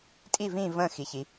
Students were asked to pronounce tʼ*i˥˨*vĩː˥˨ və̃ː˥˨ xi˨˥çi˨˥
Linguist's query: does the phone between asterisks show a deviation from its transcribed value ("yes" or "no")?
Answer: no